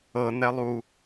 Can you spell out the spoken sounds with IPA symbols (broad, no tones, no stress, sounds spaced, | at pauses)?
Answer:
ɤ n̪ ɛ lˠ uː